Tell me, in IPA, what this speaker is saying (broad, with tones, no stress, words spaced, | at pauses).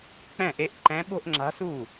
k͡pɛ̃˥˩ʔe˧˥ʔǃɛ̃˧˥ ɓo̤˥˧ʔŋ͡ǁa̤˧˥su˥˩